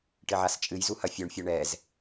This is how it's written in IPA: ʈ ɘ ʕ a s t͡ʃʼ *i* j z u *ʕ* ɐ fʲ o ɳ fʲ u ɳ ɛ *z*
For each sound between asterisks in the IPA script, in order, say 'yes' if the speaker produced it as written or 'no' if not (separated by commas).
no, no, yes